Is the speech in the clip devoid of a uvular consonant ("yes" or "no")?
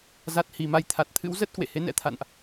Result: yes